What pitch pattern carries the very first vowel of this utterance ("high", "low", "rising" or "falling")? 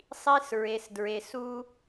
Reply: high